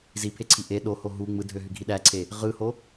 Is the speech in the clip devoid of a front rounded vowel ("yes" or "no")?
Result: no